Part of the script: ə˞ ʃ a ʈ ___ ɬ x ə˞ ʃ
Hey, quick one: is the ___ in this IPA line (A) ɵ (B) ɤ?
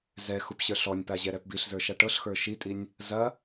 B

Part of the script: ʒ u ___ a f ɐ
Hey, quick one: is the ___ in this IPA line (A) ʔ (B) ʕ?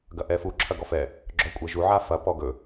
B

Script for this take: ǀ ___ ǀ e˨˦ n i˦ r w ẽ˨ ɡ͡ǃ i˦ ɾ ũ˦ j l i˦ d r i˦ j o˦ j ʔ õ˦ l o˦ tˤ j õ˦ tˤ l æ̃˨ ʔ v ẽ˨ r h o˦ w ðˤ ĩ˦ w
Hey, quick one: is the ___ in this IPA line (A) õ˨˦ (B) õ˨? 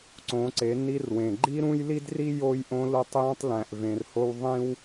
A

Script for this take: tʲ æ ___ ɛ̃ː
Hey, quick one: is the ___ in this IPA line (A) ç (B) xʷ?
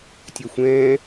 B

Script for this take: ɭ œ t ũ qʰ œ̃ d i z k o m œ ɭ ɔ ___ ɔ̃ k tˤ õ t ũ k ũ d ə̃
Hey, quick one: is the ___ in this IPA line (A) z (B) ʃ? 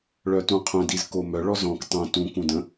A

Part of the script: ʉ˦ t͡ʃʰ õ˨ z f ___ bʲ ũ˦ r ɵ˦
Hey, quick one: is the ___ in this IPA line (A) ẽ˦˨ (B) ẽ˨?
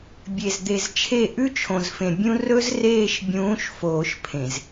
B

